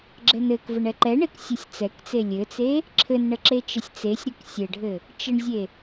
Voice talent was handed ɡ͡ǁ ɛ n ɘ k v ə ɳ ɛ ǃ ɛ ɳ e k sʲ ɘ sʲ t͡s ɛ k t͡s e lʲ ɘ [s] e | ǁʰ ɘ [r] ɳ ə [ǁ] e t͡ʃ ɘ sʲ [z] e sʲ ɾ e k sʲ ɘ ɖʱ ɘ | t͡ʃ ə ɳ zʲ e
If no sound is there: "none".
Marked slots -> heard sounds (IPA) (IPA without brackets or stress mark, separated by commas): t͡s, n, ǁ, t͡s